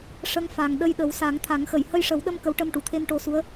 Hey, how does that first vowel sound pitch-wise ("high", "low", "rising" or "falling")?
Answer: rising